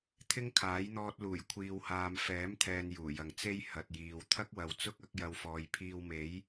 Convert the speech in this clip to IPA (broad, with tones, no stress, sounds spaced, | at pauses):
t̪ʰ ɪ˥ ŋ kʰ aː˨˥ j n̪ ɔː˧ t̚ l uː˨˩ j kʷʰ iː˨ w h aː˨ m f ɛː˨˥ m t̪ʰ ɛː˨ n j uː˨˩ j ɐ˨˧ ŋ t͡s e˧ j h ɐ˨ t̚ j iː˨ w t̪ʰ ɐ˥ k̚ w ɐ˨ w t͡s ʊ˥ k̚ ɐ˨˥ k̚ j ɐ˧ w f ɔː˨ j pʰ iː˧ w m e˨˥ j